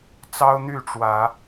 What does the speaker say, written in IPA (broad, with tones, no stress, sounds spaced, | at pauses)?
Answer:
t͡s ɑ˦ ʊ̯ n̪ y˥˨ ʈ͡ʂ w ä˨˦